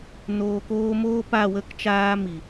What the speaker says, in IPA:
n oː˨ k oː˧ m oː˦ p a˦˨ w ə˦ k t͡ʃ aː˦ m i˨

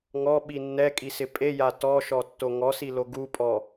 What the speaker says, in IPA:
ŋ ɔ ɓ i nː ɛ kʼ i s ɪ pʼ e j a t ɔ ʃ ɔ tː o ŋ ɔ s i l o ɡ u pʼ ɔ

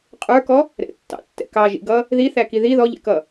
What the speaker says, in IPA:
qʼ ə˞ k ɔ | ɾ ɛ̰ tː ɑ̰ tː ɛ̰ k ɑ ʒ ḭ ɡ ʌ | ð i θ æ k i ð i ð ɔ ʎ ɛ̰ k ʌ

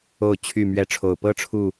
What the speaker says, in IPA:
o˥˨ ʊ̯ t͡ɕʰ y˥˨ m ɥ ɛ˨˦ ʈ͡ʂʰ o˨˩ ʊ̯ p ɤ˦ ʈ͡ʂʰ u˥˨

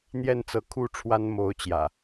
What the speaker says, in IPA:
n̪ j ɛ˥˨ n t͡s ɤ˨˦ kʰ u˥˨ ʈ͡ʂʰ w a˦ n m o˨˦ ʊ̯ t͡ɕ j ä̰˨˩

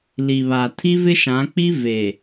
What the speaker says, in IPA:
l i˨ β a˨ tʰ i˦ v ɪ˦ ʃ ã˨˦ k͡p i˦ v e˨

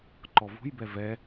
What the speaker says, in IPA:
ǃ ɔ v ṳ j b ɛ v ɛ

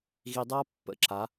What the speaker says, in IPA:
ɣ i˨ dˤ a˦ pː ə̰˨ ǁ a˨˦

